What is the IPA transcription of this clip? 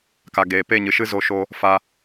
k a˨ ɡ eː˨ p e˦˨ ɲ ɨ˨ ʃ ɨ˦ z o˧ ʃ o˧ | f a˧

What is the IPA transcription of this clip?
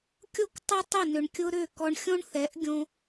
kʲ o˦ k tˤ ʏ˦ tˤ ʏ˦˨ n ʏ˨ ɳ kʲ ʊ˧ ɾ ʏ˦˨ k ɔ˧ ɳ xʲ õ˦ ɳ θ ɛ˨˦ ʔ ɡʲ õ˧

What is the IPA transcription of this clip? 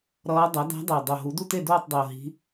ɾ ʌː˧˥ dˤ ʌ˩˥ d a̤˧˥ dˤ ɯ˨˩ ə̯ dˤ o˨˩ ɦ u˩˥ d u˥˨ t e˥˨ d oː˥˨ tˤ dˤ i˨˩ ʊ̯ ɦ i̤˧˥

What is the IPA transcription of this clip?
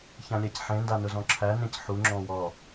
ç ã lʲ æ c ħ ẽ n d a n ʊ z ɔ̃ ǁʰ æ n ẽ c ħ u ŋ͡ǁ ɔ̃ w ɔ

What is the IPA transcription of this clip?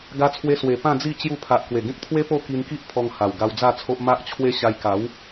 ɡ a˧ t͡sʰ w e˧ s w e˨˩ p ã˥˧ d͡z i˥˧ t͡ɕ j u˧ pʰ a˨ ʔ k w e˨˩ ɡ ẽ˦ k̚ t̪ʰ w e˦ p o˥˧ k i˧ n k i˦ ʔ pʰ ɔ˧ ŋ h a˨˩ w ɡ a˧ w d͡z a˥˧ t͡sʰ o˦ ʔ m a˦ ʔ t͡ɕʰ w e˦ ɕ a˧ j k a˨˦ w

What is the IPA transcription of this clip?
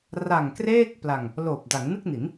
r a˨˩ ŋ k r eː˥˩ k̚ p l a˧ ŋ | l oː˨˩ p̚ d a˩˦ ŋ n ɯ˥˩ k̚ n i˩˦ n

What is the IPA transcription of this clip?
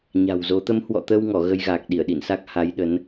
ɲ a̤˨˩ w z o˨˦ t̪ ə˨˦ m h w ɔ̰˧˨ t̪ əː˧ w ŋ ɔ˧˩ ɣ ə˧ j ɣ aː˨˩ k̚ ɗ i˧˩ ə̯ ɗ ḭ˧˨ n s a˦˥ k̚ h a˨˦ j ɗ ə˨˦ n

